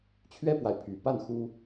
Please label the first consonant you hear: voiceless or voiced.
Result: voiceless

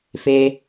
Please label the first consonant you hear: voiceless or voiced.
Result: voiceless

